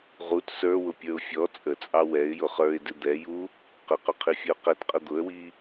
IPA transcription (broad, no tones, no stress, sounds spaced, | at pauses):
ʁ u t s ə˞ w ʊ pʲ ə˞ ʊ̯ fʲ ɔ t͡sʼ ə t͡sʼ ɑ w ɛ ɪ̯ j ʊ χ ə˞ ɪ̯ d ɪ d̪ ɛ j u | q ə q ʊ qʰ i fʲ ə ʊ̯ q ɛ t qʼ ə d̪ ʊ ə̯ w i